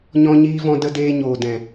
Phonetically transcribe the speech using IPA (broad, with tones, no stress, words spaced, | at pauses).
ɲɔ̃˧ɲiː˧vɔ̃˧ də˧ deː˧ɲoː˨dɛ̃˨